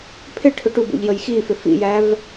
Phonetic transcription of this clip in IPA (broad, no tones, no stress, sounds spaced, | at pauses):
pʰ ɪ ʈʰ ʊ ʈ u b ṵ ʎ j ə j x i f ɪ f ḭ j æ v